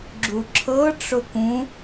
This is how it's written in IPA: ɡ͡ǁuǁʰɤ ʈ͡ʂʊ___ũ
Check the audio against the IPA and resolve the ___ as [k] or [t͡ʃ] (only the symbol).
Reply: k